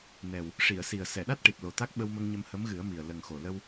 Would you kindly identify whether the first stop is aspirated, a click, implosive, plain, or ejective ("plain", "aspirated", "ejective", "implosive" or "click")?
implosive